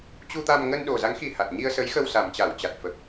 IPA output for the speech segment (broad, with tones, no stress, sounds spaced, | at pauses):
t͡ɕ u˧ t̪ a˧ m ŋ ə˧ n ɗ o˨˩ z a˨˦ ŋ x i˧ h a˨˩ t̚ ɲ i˧ ə̯ s ə˨˦ j x ə˧ w s a˨˩ m t͡ɕ a˧˩ w t͡ɕ a˨˩ t̚ f ə˨˩ p̚